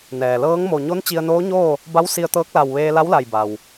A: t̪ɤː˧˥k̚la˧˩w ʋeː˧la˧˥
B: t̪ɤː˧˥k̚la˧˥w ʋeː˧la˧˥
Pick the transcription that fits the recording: A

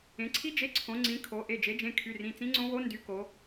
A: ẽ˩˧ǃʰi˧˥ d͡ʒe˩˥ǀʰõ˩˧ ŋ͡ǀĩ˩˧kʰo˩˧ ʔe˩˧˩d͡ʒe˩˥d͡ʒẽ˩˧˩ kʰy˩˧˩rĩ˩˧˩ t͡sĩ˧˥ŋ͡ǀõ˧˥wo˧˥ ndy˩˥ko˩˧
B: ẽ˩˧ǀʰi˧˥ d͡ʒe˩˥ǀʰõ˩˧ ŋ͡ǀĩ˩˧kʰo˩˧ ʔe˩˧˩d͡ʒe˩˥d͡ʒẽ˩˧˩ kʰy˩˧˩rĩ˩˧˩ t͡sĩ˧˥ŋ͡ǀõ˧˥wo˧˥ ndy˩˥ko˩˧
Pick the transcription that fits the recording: B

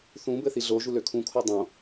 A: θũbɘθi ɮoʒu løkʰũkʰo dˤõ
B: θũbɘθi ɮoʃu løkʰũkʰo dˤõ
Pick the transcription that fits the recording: A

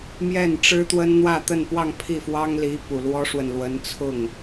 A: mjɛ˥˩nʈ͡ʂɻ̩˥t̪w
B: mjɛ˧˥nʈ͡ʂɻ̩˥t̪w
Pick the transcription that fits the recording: A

